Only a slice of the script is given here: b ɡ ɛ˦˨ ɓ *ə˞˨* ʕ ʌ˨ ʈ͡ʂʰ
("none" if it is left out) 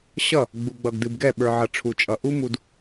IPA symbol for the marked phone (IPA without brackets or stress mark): ə˞˨